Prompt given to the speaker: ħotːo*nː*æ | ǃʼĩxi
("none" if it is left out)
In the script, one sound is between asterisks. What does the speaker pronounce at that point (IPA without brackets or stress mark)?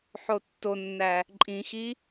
nː